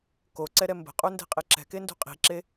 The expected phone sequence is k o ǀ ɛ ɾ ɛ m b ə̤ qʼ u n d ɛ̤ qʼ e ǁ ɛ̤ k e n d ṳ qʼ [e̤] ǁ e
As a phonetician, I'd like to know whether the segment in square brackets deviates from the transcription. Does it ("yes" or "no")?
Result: yes